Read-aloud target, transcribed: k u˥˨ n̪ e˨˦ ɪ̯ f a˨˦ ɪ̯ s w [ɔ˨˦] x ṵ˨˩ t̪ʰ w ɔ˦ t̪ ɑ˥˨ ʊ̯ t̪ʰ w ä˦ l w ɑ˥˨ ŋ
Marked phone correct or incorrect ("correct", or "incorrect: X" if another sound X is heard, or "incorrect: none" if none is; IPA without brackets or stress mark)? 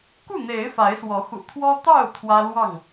correct